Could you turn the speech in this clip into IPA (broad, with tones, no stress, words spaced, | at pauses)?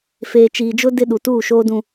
feː˨t͡ʃiː˨d͡ʒʊ˦ dɪ˦ɗu˨tuː˦˨ʃoː˦ dũ˦